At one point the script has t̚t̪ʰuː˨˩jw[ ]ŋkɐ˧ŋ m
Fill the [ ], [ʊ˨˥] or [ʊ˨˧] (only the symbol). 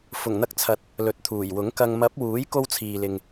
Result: ʊ˨˥